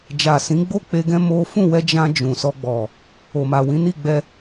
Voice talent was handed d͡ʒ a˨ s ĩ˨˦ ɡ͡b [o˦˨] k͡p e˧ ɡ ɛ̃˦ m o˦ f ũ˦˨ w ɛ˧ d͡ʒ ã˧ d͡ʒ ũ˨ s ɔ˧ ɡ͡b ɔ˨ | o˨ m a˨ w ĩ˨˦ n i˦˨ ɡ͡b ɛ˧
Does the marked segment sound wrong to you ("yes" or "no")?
no